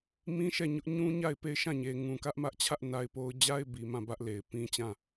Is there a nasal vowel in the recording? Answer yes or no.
yes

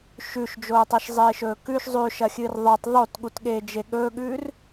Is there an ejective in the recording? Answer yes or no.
no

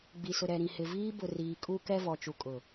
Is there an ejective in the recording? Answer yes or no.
yes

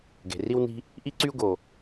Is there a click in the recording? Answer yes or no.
yes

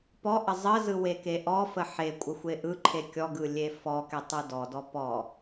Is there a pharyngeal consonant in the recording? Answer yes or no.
yes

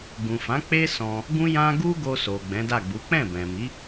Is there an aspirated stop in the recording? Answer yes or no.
no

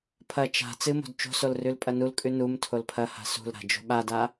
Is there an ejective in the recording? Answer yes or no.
yes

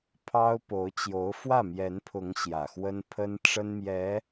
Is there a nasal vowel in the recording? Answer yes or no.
no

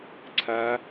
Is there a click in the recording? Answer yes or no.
yes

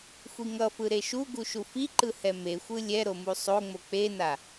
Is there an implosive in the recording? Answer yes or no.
no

